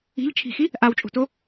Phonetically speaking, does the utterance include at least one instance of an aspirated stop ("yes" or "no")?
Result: yes